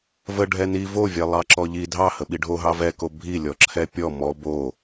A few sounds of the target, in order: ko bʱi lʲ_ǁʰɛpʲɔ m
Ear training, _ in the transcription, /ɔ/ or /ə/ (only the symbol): ɔ